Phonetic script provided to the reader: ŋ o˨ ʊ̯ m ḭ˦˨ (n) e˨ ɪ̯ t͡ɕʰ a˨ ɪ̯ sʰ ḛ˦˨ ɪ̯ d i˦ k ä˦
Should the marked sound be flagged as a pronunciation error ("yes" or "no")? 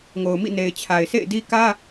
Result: no